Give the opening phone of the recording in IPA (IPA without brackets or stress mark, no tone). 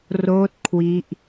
r